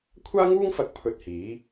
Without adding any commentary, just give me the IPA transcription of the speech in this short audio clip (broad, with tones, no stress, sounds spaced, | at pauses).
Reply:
kʷʰ aː˥ ŋ uː˥ ŋ f ɐ˧ k̚ pʰ ɵ˧ t̚ h iː˨˥